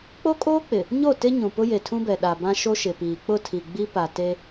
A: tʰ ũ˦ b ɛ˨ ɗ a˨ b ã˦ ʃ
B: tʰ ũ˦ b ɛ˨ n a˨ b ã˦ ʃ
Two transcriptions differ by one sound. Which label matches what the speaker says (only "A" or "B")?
A